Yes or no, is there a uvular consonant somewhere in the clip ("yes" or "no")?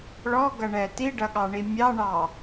no